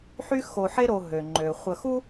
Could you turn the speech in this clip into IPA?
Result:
ħ y˦ x o˨ ħ e˦ ɾ o˨ ɦ ø˩ ŋ͡ǃ ø˩ χʷ ə˨ x u˥

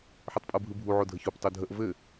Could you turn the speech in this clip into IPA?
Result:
ħ ɯ tˤ pʼ ɤ bʱ ɯ bʱ u ʕ o dʱ ə ç o p tˤ o dʱ ə ʔ v ɘ

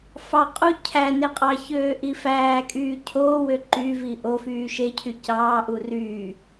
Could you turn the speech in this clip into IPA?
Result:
f ɑ qʼ u cʰ æ n e qʼ ɑ ç øː ʔ i f æː kʼ yː cʰ oː w ø ǃ y v i ʔ o f yː ʃ e cʰ y c ɑː ʔ u r y

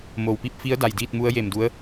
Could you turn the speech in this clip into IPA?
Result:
m o˩ w p i˧ p̚ f i˧˥ ə̯ d a˧˩ j d iː˥˨ t̚ m u˧˥ ə̯ j e˧˩ m d u˧˥ ə̯

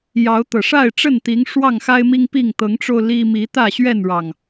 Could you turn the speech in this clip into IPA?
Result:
j ɑ˨˦ ʊ̯ t̪ ɤ˨˩ ʂ a˥˨ ɪ̯ ʈ͡ʂ ə˥˨ n t̪ i˨˦ ŋ ʂ w ɑ˥˨ ŋ x a˦ ɪ̯ m i˦ ŋ p i˥˨ ŋ t̪ ɤ˨˦ ŋ ʈ͡ʂ o˧ ʊ̯ l i˦ m i˨˦ t̪ ä˥˨ ɕ ɥ ɛ˥˨ n ɻ ɑ˨˩ ŋ

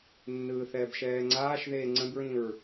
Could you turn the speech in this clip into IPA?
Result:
nː ɯː θ ɛː b ʃ ɛː ŋ͡ǀ aː ʃ ð eː ŋ͡ǀ ə̃ b ɹ ĩ ɹ

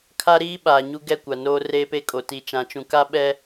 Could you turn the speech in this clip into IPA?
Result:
kʰ a˦ ɾ iː˦ ɓ aː˨ ɲ u˦ ɡ ɛ˦˨ kʷ a˨ n oː˦ r eː˦ p e˦ kʼ o˨ t i˨ t͡ʃ ã˨ t͡ʃ ũ˨ k a˦ ɓ ɛ˦

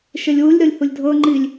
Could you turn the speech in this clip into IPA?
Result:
ʃ e lʲ w u lʲ ɾ ɤ lʲ h u lʲ dʱ ɤ ŋ͡ǃ i lʲ

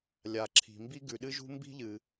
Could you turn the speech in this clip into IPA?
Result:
lʲ a˩ ǁʰ i̤˩ m b i˥ ɡ ʉ˩ ɗ ɨ˥ ʒ ṳ˥ m b i̤˥ ʎ ɨ˩

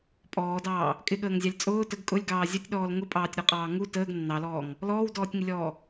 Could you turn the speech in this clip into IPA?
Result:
pʼ ɔː d ɑː | kʼ ɪ ɠ əː ŋ zʲ ɑ lʲ t͡sʼ ʊː t ə ɡ kʼ ʊ lʲ ɡ ɑː zʲ ə tʲ ɗ ɔː l ŋ ʊ pʼ ɑː tʲ ɾ ɔ qʼ ɑː ŋ u t əː ɡ nː ɑ l ɔː ŋ | l ɔː w d ɔː tʲ ŋ ɪ lʲ ɔː

